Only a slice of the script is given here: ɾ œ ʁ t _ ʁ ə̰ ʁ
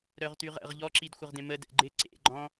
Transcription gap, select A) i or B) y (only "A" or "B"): B